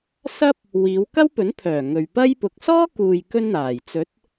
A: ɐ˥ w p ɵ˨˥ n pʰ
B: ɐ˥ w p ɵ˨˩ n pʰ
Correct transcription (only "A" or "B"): A